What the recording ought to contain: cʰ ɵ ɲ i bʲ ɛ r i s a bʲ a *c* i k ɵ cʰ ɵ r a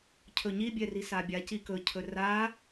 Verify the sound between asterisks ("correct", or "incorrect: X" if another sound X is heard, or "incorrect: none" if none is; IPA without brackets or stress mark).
correct